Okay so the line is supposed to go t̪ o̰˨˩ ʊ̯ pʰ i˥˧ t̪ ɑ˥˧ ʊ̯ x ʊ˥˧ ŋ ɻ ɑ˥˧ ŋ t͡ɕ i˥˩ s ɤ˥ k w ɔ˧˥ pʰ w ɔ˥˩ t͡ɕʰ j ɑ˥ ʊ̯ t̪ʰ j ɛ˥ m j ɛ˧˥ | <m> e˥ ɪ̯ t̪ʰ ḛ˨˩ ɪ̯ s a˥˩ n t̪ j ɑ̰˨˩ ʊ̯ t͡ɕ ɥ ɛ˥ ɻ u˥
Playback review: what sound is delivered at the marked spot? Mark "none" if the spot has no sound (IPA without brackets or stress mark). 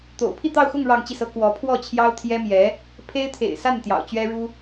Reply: pʰ